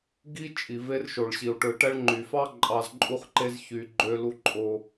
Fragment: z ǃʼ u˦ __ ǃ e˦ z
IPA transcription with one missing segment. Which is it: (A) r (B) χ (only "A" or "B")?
B